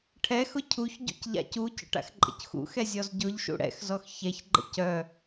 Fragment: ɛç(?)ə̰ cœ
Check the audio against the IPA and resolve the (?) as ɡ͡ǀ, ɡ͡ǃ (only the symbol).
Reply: ɡ͡ǃ